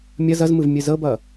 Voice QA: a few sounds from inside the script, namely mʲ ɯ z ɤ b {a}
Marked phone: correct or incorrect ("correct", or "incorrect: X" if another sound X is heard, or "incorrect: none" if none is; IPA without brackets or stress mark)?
incorrect: ʌ